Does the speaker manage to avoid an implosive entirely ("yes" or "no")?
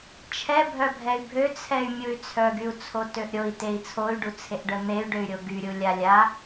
yes